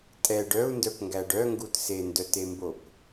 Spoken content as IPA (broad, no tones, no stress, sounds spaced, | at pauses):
tʼ ɛ ɖ œ u̯ n d œ p ŋ ɡ æ ɖ œ ŋ ɡ u t s e n d œ t e m b o p